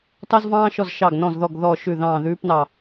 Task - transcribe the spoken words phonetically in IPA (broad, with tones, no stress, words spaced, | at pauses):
tɑ˥zvɑ̃ː˥ʃɔ˦˨z ʃɑ˦˨ɡ nɔ̃˦˨zðɔ˦˨ɡ ðɔ˦˨ʃʉ˦˨ ðɑ̃ː˦˨ðʉː˥pnɑ˦˨